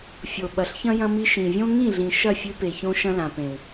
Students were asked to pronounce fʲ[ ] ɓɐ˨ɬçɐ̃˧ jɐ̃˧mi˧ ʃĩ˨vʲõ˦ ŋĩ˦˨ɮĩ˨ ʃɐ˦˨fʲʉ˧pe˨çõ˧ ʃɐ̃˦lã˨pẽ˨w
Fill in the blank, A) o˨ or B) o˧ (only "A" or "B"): A